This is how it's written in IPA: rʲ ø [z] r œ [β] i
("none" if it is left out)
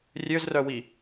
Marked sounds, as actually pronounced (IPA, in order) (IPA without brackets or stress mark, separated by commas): z, w